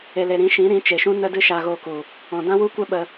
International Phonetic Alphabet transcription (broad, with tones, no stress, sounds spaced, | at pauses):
e˨ l e˨ ɾ ĩ˨˦ ʃ ĩ˨˦ ɾ ĩ˨˦ t͡ʃ e˨ ʃ ũ˦ n ə˦ d ɨ˦ ʃ a˧ ɣ oː˧ k u˨ | ɔ̃˨ d ã˦ w u˦ kʷ ɛ˦ ɓ ə˧